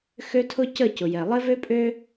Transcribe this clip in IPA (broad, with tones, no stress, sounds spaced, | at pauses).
x ø˦ tʰ ʊ˦ c ə˦˨ c ʊ˨ j ɛ˨ lˠ ɪ˦ v ø˦ pʼ ø˦